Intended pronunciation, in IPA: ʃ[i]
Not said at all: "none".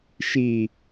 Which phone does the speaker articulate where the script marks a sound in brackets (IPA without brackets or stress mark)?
i